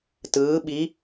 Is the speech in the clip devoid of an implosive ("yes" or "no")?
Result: no